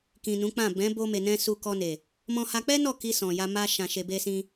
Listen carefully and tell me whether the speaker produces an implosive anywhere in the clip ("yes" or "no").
no